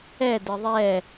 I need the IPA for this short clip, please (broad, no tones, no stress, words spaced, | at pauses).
ɛdɪ ðˤɛ